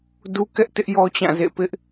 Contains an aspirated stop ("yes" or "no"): no